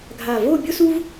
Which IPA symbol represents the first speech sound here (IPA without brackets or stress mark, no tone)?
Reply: ɡʱ